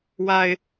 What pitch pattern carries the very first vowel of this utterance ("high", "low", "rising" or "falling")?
low